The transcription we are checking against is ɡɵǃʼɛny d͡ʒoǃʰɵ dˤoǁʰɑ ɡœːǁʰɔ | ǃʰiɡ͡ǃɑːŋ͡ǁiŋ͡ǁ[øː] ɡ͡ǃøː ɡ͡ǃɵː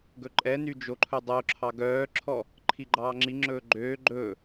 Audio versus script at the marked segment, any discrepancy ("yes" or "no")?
yes